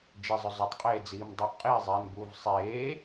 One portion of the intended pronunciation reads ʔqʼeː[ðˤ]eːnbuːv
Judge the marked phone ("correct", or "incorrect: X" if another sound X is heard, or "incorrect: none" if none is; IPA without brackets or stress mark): incorrect: zˤ